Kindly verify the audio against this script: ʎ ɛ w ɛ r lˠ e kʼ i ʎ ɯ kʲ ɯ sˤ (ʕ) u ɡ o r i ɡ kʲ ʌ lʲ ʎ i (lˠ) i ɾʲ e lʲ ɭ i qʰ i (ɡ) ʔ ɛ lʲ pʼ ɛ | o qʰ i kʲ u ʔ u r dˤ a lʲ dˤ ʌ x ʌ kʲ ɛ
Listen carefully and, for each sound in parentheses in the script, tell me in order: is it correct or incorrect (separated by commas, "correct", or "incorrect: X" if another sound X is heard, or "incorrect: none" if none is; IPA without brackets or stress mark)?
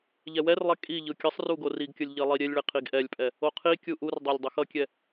incorrect: r, correct, correct